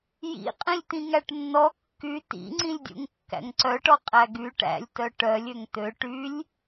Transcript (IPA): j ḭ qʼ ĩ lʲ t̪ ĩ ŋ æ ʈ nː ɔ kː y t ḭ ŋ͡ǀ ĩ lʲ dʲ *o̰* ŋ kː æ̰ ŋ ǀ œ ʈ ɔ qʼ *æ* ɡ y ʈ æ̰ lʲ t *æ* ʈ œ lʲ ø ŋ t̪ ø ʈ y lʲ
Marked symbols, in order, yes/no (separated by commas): no, yes, no